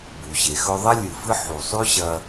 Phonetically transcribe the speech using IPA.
b u˩ ɕ e˩ x ɵ˧ ðˤ ɐ˥ lʲ ɨ˩ f ɨ˥ ħ u˩ sˤ ʉ˥ ɕ ɐ˧

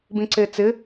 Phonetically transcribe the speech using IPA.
b ĩ ǀ e t͡s ɪ

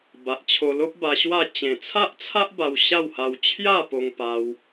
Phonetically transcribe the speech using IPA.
b a˨ ʔ t͡ɕʰ o˧ l o˦ p̚ b a˧ ɕ w a˥˧ t͡ɕ ẽ˨˩ t͡sʰ a˦ ʔ t͡sʰ a˦ ʔ b a˧ w ɕ a˥˧ w h a˧ w t͡ɕʰ j a˥˧ p o˧ ŋ p a˧ w

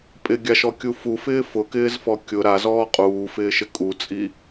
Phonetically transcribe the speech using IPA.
pʼ ɪ ɡʲ a ʃ ɔ kʲ u f u f ɪː f ʊ k ɪː z f ɔ kʲ ʊ ɾ a z ɔː qʼ uː f ɪː ʃ ɪ kʼ u t͡sʼ i

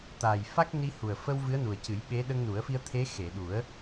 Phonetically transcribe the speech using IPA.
t̪ aː˨˩ j f a˦˥ k̚ n i˧ h u˨˩ ə̯ f ə˧ w v ɨ˧˥ ə̯ n u˨˩ ə̯ c ɨ˨˩˦ j ɓ e˧˥ ɗ ə˧ ŋ n u˨˩˦ ə̯ f i˧ ə̯ t̪ʰ e˧˥ x e˨˩˨ ɗ u˨˩˦ ə̯

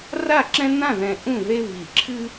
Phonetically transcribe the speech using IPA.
r a˥˧ ǁ ɛ̃˥ n ã˥˧ ð ɛ̃˧ ʔ ũ˥˧ ð e˥ β i˧˩ ǁʰ ɨ˥

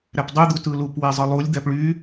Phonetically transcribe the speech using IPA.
ɾ æ p dˤ y d̪ u t ɯ l u p w e zˤ ɯ lˠ u lʲ d̪ æ p ɭ y

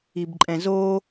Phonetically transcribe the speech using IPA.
i b ǃʼ ɛ̃ z o

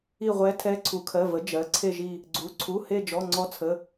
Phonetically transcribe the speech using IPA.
i˦˨ ʁʷ ɛ˧˥ tʰ ɛ˧˥ ǀʰ u˩˥ kʰ ɜ˩˧˩ v ə˩˥ d͡ʒ ɜ˩˥ ǀʰ e˦˨ ʒ i˦˨ | ɡ͡ǀ u˩˥ ǀʰ u˩˧˩ h e˦˨ d͡ʒ ɔ˩˧˩ ŋ͡ǀ ɔ˧˥ t͡sʰ ə˩˧˩

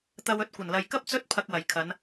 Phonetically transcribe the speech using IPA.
t̪ ɐ˧ w ɵ˧ t̚ kʷ ɐ˨˩ n l ɐ˨ j k ɐ˥ p̚ t͡s ɵ˥ t̚ pʰ ɐ˧ k̚ w ɐ˨˩ j kʰ ɐ˨˧ n

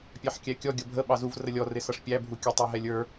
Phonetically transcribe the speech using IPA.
pʲ ɑ ħ kʲ æ kʲ ɔ ɡʲ ʌ bʱ ə ɓ ɑ z u v r ə lʲ ɔ r ɪ s ʌ ʂ pʲ æ bʱ u kʲ ə tˤ ə˞ ɦ ɛ lʲ ə˞

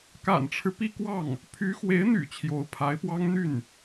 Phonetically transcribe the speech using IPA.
k a̰˨˩ n ʈ͡ʂʰ ɻ̩˦ p i˥˧ k w ɑ˥˩ ŋ | pʰ y˧˥ x w e˧˥ ɪ̯ n̪ y̰˨˩ t͡ɕʰ j o˧˥ ʊ̯ pʰ a˧˥ ɪ̯ p w ɑ˥ ŋ n̪ y˥˩ n

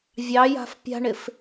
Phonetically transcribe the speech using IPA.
vʲ ɑ j a̤ f pʲ a̤ ɳ ɪ f

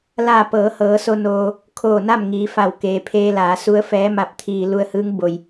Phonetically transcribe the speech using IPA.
l aː˧˩ p ɤː˩˧ h ɤː˩˧ s o˧ n oː˧ | kʰ oː˧˩ n a˥˨ m ŋ iː˩˧ f a˧˩ w k eː˩ pʰ eː˧ l aː˩˧ s u˧˥ ə̯ f ɛː˧˥ m a˧ p̚ t̪ʰ iː˧ l u˧ ə̯ h ɯː˧˥ ŋ b o˧ j

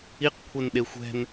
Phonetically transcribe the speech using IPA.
i q kʷʰ e n ɗ e xʷ ɛ̤ n

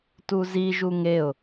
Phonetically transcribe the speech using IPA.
t u z i ʒ u ŋ e ʊ̯

